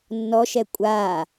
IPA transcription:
nː ɔ ʃ ɛ kʷʼ a

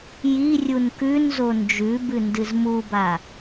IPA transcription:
j i rʲ u n k ʉ n z o n d͡ʒ ʉ b ɨ n d ɨ z m u b a

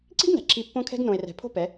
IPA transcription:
ǀ i̤˦ ɡ n æ̤˨ ǁʰ i˧ pː õ˦ kʰ ɛ̤˦ ɡ n õ˨ e̯ r ɛ̤˨ pʰ o̤˧ p ɛ˨˦

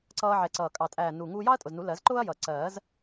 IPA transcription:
ǀ ʌː˧ ʕ ɛ˨˩ ǀ ʌː˨˩ kʼ ɑ˨˩ tʼ æː˨˩ n u˨˩ ŋ uː˧ j ɑ˥ ɐ̯ tʼ ʊ˨˩ z n u˨˩˦ l ɜ˨˩˦ z ǃ ʊː˥ ɐ̯ j ʌ˨˩ ǀ ɜː˨˩˦ z

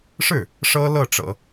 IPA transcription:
ʂ ɻ̩˥˩ | ʂ ɤ˥ l ɤ˥˩ ʈ͡ʂ ɤ̰˨˩˦

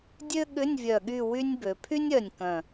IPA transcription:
dʲ ø˥ ɠ ʏ˧˥˧ nʲ vʲ œ˧˩ ɠ y˥˧ w y˥ nʲ b ø˩˧ pʰ y˥ nʲ œ˧˩ nʲ k œ̃˧˩

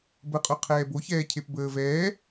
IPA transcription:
b ə qʼ o qʰ ɛː b o ç ɛː cʰ e p b əː v ɛː

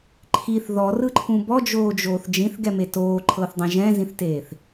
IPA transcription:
ǃʰ i θ ð ɔ r ɯ ǃʰ ũ b ɔ d͡ʒ oː d͡ʒ oː θ d͡ʒ ĩ θ ɡ ɛ m e t oː ǃʰ ɤ θ dˤ ɛ̃ ʒ ɛ̃ z ĩ θ t eː θ

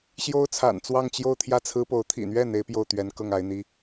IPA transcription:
ɕ j o˥ ʊ̯ t͡sʰ a̰˨˩ n t͡s w ɑ˥˧ ŋ t͡ɕ j o˥˧ ʊ̯ t̪ʰ j ä˥˩ t͡sʰ ɹ̩˥ p o˧˥ ʊ̯ t̪ʰ ḭ˨˩ n̪ ɥ ɛ˥˩ n̪ e˥ ɪ̯ p j o˥˩ ʊ̯ t̪ ɥ ɛ˧˥ n k ɤ˥˩ ŋ a˧˥ ɪ̯ n̪ i˥

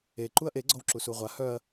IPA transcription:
e ǃ u ɐ̯ ʔ e ɡ͡ǀ ɔ w ǁ u s u ʁʷ a h œ ɐ̯

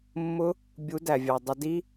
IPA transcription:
mː ʊ˦ | bʲ u˨˦ d æ˨ vʲ ɑ˨ dˤ ə˧ d i˦

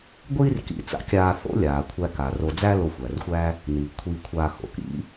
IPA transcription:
ɡʷ iː˦ r k ḭ˨ t͡s a̰˨ kʲ aː˨ θ o̰˦ lʲ aː˩ kʷʰ æ˨ k a˩ r o˨ d͡z æ˦ l o˨ xʷ æ˩ r xʷ æ˦ | n iː˩ kʷʰ iː˨ kʷʰ aː˨ x o̰˩ k ḭ˥

